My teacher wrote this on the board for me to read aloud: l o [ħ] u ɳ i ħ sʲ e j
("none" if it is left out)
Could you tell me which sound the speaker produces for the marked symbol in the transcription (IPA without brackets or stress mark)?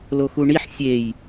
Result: x